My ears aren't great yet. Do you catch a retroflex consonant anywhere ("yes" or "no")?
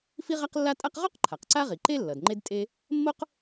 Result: no